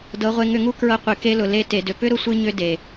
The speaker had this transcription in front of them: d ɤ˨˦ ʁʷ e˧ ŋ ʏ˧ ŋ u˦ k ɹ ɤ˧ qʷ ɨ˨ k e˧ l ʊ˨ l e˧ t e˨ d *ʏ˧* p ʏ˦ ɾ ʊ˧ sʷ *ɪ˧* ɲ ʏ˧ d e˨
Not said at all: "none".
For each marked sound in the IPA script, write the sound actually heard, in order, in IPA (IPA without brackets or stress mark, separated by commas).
ʏ˨, ɨ˧